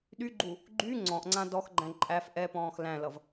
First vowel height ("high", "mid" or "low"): high